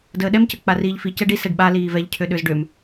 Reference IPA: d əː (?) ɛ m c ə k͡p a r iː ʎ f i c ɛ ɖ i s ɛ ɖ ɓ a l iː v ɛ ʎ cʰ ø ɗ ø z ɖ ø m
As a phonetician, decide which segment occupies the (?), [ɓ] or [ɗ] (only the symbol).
ɗ